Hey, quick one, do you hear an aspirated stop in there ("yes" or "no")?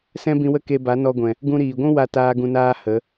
no